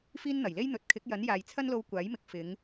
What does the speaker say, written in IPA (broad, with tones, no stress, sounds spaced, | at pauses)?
f iː˥ n n̪ ɐ˨˩ j l e˥ j n̪ ɵ˨˥ t̚ kʰ ɪ˨˥ k̚ j ɐ˨˥ n j aː˨ j t͡sʰ ɐ˥ n l o˧ w kʷ aː˨˥ j m ɪ˨ k̚ f ɪ˨˧ ŋ